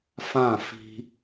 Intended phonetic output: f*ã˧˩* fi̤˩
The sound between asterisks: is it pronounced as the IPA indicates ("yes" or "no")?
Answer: yes